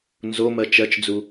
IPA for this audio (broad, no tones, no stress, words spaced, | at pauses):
nzomɜ t͡ʃɜt͡ʃd͡zu